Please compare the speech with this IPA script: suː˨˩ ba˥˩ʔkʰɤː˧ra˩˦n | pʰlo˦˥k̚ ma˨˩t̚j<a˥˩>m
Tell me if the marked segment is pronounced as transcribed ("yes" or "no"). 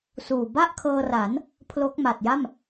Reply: yes